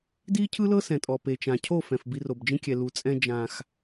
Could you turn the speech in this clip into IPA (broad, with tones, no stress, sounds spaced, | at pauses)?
d iː˦ cʰ ɯ˦ l ɤ˦ s ɛ̃˨ tʼ ɔ˨ p e˨ t͡ʃ ã˨ cʰ o˦˨ f ɛ̃˨ f b i˧ r o˨ b d͡ʒ ĩ˦ kʲ ɛ˨ l u˨ t͡sʼ ɛ̃˧ d͡ʒ ã˨ x